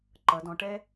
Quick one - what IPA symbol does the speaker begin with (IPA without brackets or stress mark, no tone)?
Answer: ǃ